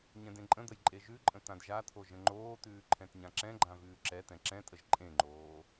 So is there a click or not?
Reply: yes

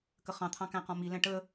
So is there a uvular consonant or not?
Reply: yes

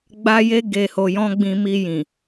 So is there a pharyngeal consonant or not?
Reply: no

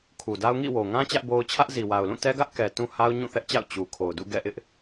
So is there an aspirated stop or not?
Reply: yes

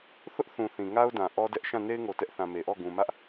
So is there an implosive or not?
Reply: no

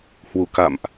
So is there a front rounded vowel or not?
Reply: no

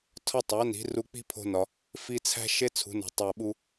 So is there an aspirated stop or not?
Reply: yes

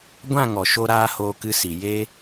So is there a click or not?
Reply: no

